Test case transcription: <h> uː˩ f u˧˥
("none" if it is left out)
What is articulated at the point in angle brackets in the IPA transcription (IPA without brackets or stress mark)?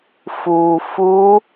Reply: f